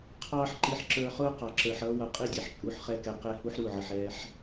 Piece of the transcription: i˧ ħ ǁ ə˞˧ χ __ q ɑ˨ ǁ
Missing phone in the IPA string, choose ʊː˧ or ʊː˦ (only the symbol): ʊː˦